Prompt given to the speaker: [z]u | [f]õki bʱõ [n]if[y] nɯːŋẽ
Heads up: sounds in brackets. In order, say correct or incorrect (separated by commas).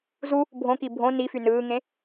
correct, incorrect, correct, correct